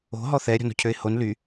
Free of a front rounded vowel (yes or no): no